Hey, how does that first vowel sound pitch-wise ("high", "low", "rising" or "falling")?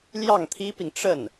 falling